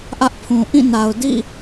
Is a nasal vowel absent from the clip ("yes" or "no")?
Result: no